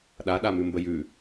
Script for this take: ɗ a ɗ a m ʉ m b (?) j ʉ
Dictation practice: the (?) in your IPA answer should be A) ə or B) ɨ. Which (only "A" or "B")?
A